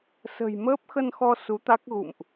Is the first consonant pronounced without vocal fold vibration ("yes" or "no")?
yes